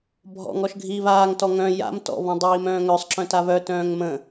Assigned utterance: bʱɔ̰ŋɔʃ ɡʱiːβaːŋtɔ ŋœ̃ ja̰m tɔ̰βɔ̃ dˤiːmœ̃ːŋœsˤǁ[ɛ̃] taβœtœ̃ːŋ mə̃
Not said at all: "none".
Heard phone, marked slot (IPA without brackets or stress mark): œ̃